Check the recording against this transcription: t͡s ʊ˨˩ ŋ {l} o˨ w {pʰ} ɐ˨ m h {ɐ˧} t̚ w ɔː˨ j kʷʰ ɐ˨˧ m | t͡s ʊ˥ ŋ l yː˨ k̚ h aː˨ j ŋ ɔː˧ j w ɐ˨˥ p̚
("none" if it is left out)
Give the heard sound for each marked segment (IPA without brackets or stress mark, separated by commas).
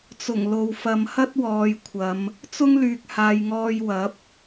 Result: l, f, ɐ˥